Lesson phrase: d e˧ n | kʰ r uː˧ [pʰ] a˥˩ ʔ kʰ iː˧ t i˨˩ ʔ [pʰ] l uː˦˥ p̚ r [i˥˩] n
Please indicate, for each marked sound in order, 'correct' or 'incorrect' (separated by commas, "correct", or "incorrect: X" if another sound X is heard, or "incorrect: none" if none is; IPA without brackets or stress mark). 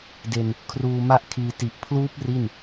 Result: incorrect: m, correct, correct